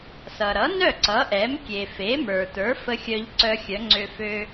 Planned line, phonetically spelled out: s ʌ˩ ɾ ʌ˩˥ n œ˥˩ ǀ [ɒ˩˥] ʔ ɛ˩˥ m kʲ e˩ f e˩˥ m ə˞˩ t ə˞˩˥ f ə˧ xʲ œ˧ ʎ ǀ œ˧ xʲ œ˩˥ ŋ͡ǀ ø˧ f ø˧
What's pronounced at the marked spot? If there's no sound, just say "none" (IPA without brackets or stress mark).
ʌ˩˥